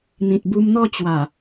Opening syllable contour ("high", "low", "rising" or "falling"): low